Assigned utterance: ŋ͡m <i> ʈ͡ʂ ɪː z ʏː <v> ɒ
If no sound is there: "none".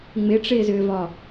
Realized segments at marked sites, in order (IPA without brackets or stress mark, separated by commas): ɪ, v